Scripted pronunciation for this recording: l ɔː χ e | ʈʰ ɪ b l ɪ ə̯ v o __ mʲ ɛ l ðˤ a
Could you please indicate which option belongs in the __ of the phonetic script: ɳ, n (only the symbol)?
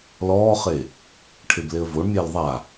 ɳ